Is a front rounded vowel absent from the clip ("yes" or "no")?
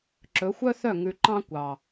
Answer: no